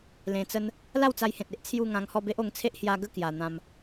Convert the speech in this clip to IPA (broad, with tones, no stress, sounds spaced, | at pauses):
l ẽ˧ t͡s ə˦ n | l a˥˧ w t͡s a˧ j h ẽ˨ t̚ e˦ ʔ t͡sʰ j u˥˧ ŋ ã˧ ŋ h ɔ˥˧ b e˦ ʔ o˧ ŋ t͡sʰ e˦ ʔ h j a˧ ɡ ə˥˧ k j a˨˩ n̪ ã˧ m